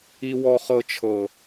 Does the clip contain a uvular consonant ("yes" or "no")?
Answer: yes